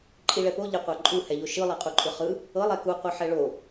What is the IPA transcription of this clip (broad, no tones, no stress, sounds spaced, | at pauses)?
ǃʼ i ɭ ɛ p o ʎ e qʷ a ǃʼ u h ɛ ʎ o ʃ ɯ lˠ i qʼ u ǃʼ ɯ χ ɯ | ɤ lˠ ɛ k u qʷ ɯ ħ ɛ ɭ o